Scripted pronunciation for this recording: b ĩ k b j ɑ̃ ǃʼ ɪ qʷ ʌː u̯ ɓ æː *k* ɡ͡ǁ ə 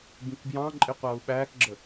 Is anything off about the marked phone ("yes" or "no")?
no